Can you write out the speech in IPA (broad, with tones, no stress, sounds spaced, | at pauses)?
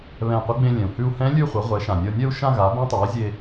β ɛ̃˧˩ qʷ ʌ˧˥ ɡ͡b ẽ˧ lʲ ɛ̃˩ u̯ h ʉ˧ u̯ h ɛ̃˧˥ lʲ ʉ˥˧ χʷ ʌ˩˥ ʁʷ ɛ˩˥ ʃ ã˩ nʲ ʌ˧ nʲ ɛ˥˧ u̯ ʃ ã˥˧ ɣ a˩˥ b ẽ˧˥ tˤ a˩˥ i̯ zʲ e˧